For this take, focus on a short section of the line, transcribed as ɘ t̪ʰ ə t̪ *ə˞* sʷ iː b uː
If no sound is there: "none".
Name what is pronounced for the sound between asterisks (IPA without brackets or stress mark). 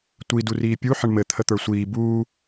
ə˞